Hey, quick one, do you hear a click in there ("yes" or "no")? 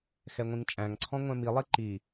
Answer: yes